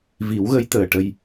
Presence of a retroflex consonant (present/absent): present